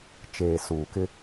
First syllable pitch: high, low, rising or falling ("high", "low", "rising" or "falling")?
low